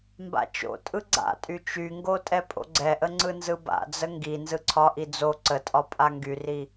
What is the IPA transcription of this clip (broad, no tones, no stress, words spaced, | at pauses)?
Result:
mba̰t͡ʃo̰tʼɯ ɡ͡ǀa̰tʼy t͡ʃyŋɡo tʼɛpʼo̰ɡ͡ǀɛʔə ŋ͡ǀɯnzɯba̰d͡zə ŋɡi nzɯǀʰɒʔi d͡zo ǀətʼɒ pʼaŋɡyri